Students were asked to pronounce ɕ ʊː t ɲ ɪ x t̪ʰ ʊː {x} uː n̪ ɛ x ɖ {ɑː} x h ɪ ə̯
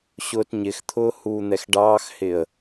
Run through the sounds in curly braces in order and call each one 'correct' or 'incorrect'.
incorrect: h, correct

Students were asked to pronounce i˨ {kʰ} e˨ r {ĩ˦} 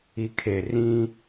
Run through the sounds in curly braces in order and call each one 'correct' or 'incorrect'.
correct, correct

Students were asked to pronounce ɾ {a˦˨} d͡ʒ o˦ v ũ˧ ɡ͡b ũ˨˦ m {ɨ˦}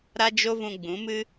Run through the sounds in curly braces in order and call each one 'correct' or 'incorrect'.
incorrect: a˦, correct

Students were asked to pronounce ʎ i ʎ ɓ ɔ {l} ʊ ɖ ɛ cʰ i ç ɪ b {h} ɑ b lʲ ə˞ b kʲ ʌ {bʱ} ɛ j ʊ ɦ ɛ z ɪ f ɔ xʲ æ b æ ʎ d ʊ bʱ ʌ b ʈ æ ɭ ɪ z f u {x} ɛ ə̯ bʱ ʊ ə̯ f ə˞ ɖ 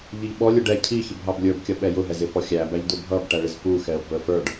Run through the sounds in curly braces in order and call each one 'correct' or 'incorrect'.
incorrect: lʲ, incorrect: ɦ, incorrect: ɓ, correct

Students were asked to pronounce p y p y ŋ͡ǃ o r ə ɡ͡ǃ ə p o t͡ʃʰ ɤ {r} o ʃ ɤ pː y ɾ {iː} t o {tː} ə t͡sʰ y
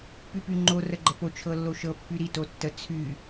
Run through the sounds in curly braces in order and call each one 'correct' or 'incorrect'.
incorrect: lː, incorrect: i, correct

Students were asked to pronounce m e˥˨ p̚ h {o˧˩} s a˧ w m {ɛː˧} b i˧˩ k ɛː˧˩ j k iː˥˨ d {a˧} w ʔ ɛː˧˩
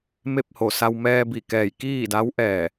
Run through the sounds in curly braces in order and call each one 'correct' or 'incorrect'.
correct, correct, incorrect: a˧˥

